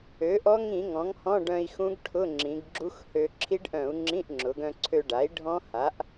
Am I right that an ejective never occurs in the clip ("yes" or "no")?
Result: yes